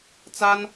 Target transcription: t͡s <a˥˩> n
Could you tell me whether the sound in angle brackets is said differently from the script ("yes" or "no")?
yes